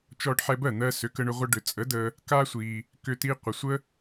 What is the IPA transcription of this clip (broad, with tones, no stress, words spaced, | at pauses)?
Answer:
t͡ʃɔ˧ɖħɛ˧bɜ˥˩n̪ɜ˧ sʏ˩˥kə˧ɳʏ˧ ʁʷə˧ɖʏ˩t͡sʼə˩˥ də˧ | ka˥sʷi˩ | kʏ˧ ti˧qʷə˩sʷə˥